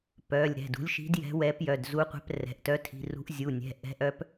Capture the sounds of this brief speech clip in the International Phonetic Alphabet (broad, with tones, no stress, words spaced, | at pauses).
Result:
pœ˩˧˩lʲ ɾɛ̤˩˧˩dṳ˨˥lʲʃi̤˨˥d jɛ̤˨˥wɛ˨˥p jœ˩˧˩dzu˨˥qʷɛ̤˨˥p rɛ̤˩˧˩ʔtœ˨˥tʰi̤˩˧˩rṳ˨˥ʔ zʲu˩˧˩nʲɛ̤˩˧˩ ʔɛ̤˨˥ʔœ˨˥p